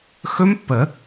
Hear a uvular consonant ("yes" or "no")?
no